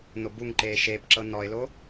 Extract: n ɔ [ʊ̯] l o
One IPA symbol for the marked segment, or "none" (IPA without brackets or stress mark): ɪ̯